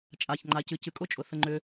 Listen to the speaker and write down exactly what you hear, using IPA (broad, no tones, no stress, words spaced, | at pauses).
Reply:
t͡ʃʼaçŋ͡ǃacɨ cɨkʼʊt͡ʃʼʊ θəŋ͡ǃʏ